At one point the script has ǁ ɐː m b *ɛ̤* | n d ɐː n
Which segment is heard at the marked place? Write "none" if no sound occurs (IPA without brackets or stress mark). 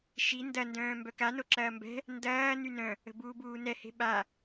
ɛ̤